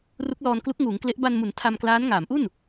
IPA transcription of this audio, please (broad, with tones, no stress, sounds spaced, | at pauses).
r u˦˥ k̚ l ɔː˧ n k l u˦˥ k̚ ŋ uː˩˦ ŋ k l e˦˥ ʔ b a˧ n m u˩˦ n tʰ a˧ m k l aː˦˥ n ŋ aː˩˦ m ʔ u˥˩ n